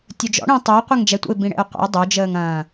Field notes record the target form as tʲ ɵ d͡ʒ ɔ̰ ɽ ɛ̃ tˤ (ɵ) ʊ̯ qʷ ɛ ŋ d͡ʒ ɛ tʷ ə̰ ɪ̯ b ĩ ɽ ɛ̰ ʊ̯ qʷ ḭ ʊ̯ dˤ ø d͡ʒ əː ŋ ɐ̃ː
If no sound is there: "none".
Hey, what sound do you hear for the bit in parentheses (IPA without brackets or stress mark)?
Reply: ø